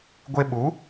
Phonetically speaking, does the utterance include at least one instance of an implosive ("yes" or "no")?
yes